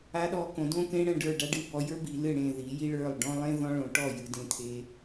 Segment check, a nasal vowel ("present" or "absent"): present